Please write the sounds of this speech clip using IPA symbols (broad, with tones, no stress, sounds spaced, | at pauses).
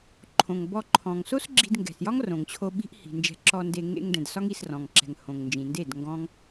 ǃʰ õ˨ ŋ b ɔ˧ ǃʰ ɔ̃˨ ŋ s o˦ s ɡ͡ǁ i̤˧ d ŋ ɡ ɛ̤˨ s j ɒ˦ ŋ r õ˨ ŋ t͡ɕʰ o˧ ɓ i̤˦ ʔ h i̤˨ n d͡ʒ ɛ̤˧ ǁ ɔ˧ n d e˧ ŋ ḛ˧ ŋ d ɛ̃˨ d s ɒ˦ ŋ i˧ s r ɔ̃˨ ŋ ǁ ɛ̤˨ ŋ h õ˨ ŋ n d͡ʒ ĩ˨ n d e˦˨ d ŋ ɡ ɔ̃˦ ŋ